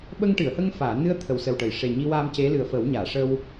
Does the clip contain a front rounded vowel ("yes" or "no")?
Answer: no